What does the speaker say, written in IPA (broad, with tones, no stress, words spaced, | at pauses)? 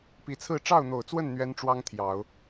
pi˨˩t͡sʰɹ̩˥˧ ʈ͡ʂɑ˥˩ʊ̯n̪o˨˩ʊ̯t͡swə˥˩n n̪ɥɛ˥nʈ͡ʂwɑ˥ŋt̪ʰjɑ˨˩˦ʊ̯